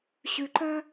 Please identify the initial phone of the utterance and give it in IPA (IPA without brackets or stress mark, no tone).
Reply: ɕ